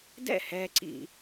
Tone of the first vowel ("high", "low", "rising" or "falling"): falling